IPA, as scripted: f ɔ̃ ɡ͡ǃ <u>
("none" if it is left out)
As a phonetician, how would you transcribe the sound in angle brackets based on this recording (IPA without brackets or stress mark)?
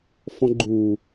u